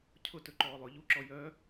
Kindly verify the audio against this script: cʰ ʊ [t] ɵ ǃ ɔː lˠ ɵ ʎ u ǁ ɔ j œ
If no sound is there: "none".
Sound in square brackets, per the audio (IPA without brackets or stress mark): t